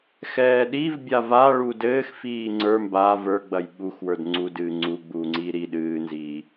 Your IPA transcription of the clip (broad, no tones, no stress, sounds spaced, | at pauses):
x ɛː ɗ i v bʲ a v a ɭ u d ɘː x f iː ŋ͡ǀ ə˞ m b a v ə˞ ɡ͡b ɐ j ɓ u x w ə˞ d ŋ͡ǀ u d ɨː ŋ͡ǀ u ɡ͡b uː ŋ͡ǀ iː ɾ i ɗ ɨː n z iː